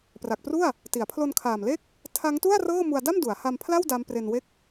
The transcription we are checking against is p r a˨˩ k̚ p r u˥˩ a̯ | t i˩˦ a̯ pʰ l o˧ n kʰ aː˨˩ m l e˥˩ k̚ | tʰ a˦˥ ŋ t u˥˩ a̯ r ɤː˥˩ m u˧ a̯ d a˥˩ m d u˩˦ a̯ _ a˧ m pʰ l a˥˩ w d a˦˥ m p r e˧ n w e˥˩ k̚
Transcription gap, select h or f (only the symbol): h